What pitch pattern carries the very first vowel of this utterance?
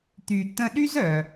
low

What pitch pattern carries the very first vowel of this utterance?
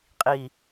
low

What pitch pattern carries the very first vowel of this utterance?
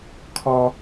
high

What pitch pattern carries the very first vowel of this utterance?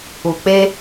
low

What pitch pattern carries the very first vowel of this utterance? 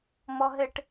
high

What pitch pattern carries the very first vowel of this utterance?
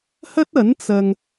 high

